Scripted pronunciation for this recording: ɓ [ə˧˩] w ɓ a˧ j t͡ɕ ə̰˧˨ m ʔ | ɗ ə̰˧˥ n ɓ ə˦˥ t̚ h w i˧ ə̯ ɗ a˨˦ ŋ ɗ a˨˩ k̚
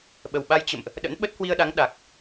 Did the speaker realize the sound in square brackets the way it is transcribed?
no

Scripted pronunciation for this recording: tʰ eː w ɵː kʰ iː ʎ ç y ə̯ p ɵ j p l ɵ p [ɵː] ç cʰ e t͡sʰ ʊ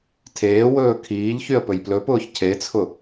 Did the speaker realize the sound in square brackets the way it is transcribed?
no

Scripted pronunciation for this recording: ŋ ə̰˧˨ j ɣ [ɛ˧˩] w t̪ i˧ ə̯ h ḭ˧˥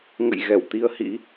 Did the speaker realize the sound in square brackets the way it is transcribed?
yes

